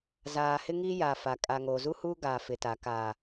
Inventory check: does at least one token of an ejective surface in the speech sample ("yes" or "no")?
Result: yes